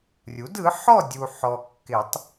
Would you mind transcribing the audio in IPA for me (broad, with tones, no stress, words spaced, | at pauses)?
rʲu˩˥dɯ˩˥ħɔ˥˨dʲu˨ ħɔ˨kːɪ˨˩˦tˤ